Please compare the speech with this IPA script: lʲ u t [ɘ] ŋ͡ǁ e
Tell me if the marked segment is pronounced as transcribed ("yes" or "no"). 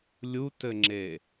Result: yes